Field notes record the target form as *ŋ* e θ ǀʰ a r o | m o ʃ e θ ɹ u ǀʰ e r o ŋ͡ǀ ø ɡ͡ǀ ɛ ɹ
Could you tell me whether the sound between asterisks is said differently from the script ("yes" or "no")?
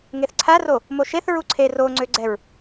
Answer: no